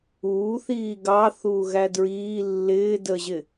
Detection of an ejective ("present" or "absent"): absent